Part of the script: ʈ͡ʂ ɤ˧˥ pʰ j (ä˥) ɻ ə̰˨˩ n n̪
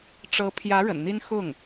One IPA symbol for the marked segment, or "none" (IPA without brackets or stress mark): ä˧˥